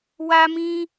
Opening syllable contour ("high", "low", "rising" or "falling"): high